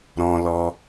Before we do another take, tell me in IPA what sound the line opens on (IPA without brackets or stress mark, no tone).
ɾ